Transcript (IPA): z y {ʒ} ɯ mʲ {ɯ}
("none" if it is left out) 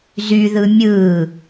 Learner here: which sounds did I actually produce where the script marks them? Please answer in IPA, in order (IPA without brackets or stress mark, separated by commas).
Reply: ð, ɯː